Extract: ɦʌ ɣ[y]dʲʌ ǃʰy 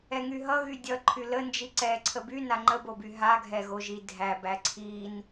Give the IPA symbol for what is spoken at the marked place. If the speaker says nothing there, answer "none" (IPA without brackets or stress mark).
y